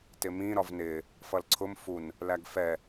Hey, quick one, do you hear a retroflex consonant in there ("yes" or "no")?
no